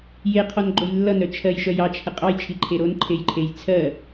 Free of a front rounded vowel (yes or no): no